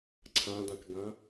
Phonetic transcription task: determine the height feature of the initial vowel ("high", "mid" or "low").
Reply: low